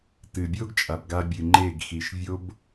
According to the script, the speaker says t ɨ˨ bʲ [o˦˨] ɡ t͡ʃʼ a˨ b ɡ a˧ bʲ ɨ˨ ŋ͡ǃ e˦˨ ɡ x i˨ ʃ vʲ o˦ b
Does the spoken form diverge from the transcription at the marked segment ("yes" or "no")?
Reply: yes